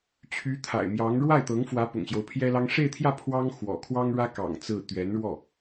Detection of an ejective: absent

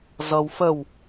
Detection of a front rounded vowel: absent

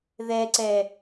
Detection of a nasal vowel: absent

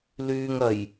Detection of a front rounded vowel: present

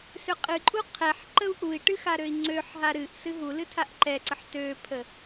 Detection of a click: present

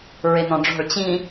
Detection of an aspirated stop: absent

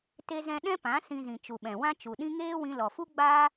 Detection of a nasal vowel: present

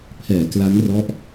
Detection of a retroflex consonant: absent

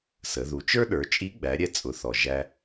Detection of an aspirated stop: absent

